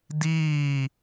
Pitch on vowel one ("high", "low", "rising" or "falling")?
falling